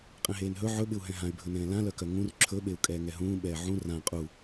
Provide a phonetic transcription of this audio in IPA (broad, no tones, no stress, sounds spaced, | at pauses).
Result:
qʼ ɛ̃ ɦ eː n ɦ ɵ ʕ ɵ ɓ ɪ u̯ ɦ ɛ̃ ɦ ã y̯ bʱ ɵ n ɛ̃ː l ã l œ k œ ŋ ũ r ǁʰ ɵ ɓ e u̯ kʼ ɛː ŋ ɛ ɦ ũː ɓ ɛː ʕ ũ r ã qʼ u